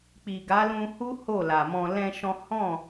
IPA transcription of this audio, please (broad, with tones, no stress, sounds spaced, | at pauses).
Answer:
k͡p i˨ ɡ a˨˦ l ũ˧ h u˦ h o˦˨ l a˨ m ɔ̃˧ l ɛ̃˦ ʃ ɔ̃˦ h ɔ̃˦˨